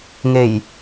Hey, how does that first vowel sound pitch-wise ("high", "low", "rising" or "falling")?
low